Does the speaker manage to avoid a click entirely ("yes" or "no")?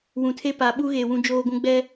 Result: yes